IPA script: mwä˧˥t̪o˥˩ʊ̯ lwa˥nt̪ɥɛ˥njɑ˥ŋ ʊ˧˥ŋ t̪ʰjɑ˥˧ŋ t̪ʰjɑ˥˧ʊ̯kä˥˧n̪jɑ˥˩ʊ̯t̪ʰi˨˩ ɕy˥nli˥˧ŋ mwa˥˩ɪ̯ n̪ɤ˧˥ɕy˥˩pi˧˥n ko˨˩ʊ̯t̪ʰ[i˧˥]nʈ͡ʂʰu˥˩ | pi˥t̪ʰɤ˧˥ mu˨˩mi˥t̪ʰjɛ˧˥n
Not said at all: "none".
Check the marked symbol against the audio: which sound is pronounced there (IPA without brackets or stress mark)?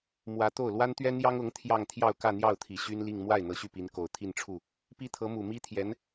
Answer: i˥˧